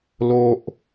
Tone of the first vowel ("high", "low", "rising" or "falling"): high